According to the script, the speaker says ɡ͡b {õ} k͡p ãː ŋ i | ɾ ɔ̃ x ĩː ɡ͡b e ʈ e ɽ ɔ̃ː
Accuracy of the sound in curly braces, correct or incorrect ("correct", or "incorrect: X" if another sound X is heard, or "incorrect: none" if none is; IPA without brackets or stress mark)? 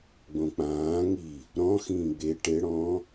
correct